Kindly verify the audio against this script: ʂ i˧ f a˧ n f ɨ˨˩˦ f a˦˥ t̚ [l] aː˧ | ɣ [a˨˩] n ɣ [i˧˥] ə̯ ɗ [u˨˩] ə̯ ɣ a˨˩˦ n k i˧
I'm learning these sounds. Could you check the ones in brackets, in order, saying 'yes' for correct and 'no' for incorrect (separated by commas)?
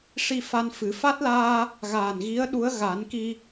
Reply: yes, no, yes, no